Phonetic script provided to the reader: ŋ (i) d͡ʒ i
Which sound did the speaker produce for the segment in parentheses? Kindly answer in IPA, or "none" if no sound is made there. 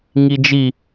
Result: i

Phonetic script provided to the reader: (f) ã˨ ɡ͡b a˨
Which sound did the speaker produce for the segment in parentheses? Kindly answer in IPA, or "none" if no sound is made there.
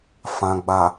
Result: f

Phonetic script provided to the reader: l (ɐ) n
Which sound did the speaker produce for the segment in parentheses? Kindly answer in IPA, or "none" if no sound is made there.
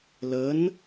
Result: ə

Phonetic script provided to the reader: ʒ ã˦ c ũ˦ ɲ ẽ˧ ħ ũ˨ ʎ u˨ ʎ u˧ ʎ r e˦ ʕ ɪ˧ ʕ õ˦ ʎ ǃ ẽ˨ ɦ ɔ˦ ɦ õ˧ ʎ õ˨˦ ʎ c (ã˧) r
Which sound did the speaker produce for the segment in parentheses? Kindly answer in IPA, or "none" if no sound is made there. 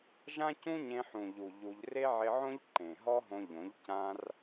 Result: ã˧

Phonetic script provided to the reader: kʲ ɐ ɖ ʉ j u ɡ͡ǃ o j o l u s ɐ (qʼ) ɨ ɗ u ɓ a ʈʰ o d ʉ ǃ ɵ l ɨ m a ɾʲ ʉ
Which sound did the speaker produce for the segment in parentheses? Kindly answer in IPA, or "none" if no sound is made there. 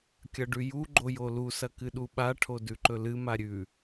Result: k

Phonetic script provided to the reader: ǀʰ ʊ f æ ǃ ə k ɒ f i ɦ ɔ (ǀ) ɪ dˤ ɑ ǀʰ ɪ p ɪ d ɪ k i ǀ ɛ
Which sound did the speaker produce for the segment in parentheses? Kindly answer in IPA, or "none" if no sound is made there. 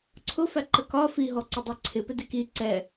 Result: ǀ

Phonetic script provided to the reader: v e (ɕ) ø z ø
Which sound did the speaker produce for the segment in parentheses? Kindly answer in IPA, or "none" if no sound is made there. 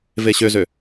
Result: ɕ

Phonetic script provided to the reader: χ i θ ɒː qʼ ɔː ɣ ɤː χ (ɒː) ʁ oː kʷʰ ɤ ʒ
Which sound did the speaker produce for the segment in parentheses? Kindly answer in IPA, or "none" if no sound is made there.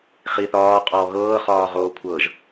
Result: ɒː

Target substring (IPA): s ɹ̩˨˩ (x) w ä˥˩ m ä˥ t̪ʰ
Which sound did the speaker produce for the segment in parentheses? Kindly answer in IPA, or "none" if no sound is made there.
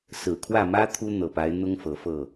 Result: kʰ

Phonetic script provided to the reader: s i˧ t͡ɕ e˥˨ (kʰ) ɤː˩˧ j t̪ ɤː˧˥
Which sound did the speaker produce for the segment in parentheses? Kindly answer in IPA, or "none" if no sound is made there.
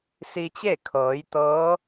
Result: kʰ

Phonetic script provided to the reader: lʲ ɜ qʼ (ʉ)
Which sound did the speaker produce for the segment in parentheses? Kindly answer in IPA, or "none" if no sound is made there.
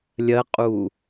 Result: u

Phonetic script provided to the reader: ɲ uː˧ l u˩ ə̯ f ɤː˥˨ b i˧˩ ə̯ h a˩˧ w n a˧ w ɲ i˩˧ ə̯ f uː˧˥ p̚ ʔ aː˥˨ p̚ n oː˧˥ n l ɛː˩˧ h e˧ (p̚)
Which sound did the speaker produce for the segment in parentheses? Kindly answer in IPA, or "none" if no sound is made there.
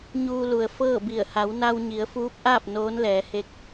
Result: k̚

